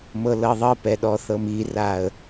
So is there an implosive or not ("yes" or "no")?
yes